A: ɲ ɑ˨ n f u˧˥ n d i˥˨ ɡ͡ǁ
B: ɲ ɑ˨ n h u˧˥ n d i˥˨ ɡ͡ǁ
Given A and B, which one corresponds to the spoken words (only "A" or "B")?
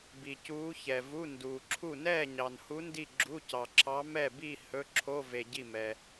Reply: B